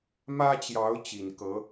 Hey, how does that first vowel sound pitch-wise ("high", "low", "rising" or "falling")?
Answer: high